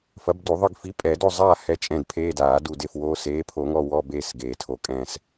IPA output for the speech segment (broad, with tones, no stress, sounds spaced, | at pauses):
f ɐ˨˥ b d u˨˩˦ ðˤ ɨ˦˨ ɡ f i˨˥ pʼ ɛ˨˩˦ d o˦˨ zˤ aː˦˨ h ɛ˧˥˧ t͡ʃʼ ɛ̃˦˨ d pʰ eː˧˥˧ d aː˨˩˦ d u˦˨ d e˦˨ f w oː˧˥˧ s eː˨˥ pʰ o˨˩˦ ŋ ɔ˦˨ w ɔ˧˥˧ b eː˦˨ s ɡ eː˨˩˦ tʰ o˨˩˦ kʼ ɛ̃˦˨ s